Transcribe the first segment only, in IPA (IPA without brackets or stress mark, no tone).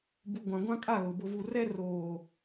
b